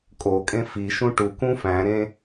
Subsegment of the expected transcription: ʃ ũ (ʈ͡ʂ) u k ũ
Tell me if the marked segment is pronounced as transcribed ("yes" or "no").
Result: no